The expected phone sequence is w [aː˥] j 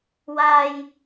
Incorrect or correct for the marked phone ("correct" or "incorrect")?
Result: correct